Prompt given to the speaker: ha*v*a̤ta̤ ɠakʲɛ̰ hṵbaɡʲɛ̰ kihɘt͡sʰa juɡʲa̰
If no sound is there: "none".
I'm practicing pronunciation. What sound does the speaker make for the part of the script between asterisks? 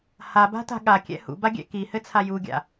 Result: b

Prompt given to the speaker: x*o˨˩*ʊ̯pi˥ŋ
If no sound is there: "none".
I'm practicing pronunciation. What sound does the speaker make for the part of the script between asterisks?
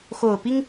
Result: o˨˩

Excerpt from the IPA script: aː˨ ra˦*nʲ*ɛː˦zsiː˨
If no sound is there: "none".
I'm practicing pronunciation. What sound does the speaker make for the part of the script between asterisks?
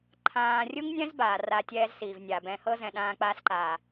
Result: tʲ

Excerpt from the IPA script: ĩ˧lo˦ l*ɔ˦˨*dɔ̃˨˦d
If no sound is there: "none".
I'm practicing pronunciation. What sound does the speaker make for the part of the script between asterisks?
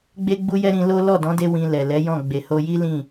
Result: ɔ˦˨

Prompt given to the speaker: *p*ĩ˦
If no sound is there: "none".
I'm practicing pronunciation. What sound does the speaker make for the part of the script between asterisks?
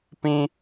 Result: p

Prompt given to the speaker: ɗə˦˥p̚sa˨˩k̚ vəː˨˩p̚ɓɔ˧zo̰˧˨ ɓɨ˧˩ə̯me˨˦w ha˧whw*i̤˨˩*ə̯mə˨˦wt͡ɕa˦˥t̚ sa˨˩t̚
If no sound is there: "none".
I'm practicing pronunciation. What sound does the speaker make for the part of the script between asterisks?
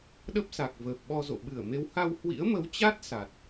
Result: ḭ˧˥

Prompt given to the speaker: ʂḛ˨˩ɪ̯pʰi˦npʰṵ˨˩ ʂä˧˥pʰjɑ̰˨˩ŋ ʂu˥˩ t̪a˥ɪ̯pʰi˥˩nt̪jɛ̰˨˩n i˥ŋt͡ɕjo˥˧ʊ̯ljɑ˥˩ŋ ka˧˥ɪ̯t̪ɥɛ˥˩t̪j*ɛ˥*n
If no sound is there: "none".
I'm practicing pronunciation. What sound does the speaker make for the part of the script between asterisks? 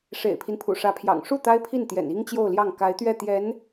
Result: ɛ˧˥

